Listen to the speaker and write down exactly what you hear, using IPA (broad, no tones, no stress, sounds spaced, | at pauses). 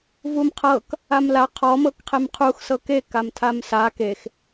v u m qʰ ɤ k | a m l a qʰ ɔ m ɤ k qʰ e m qʰ u x s ɤ k e k a m tʰ a m s a k e x